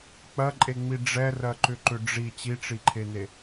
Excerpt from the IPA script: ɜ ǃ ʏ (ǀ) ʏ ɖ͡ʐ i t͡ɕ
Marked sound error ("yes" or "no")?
yes